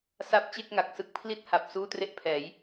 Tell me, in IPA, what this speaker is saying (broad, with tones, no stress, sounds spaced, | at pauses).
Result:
s a˥˩ p̚ t͡ɕ e˥˩ k̚ ŋ a˨˩ k̚ s ɯ˦˥ k̚ pʰ l i˥˩ t̚ h a˨˩ p̚ s uː˥˩ t r e˥˩ ʔ pʰ ɛː˩˦ j